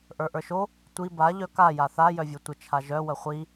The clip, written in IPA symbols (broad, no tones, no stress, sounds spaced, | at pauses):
ʔ ə˞ ʔ ə˞ ʃ o | tʷ i b a ʎ œ k a j a θ a j œ vʲ o tʷ ə t͡ʃʰ a ʒ œ w ə χʷ i